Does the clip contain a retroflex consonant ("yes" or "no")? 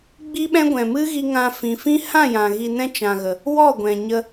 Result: no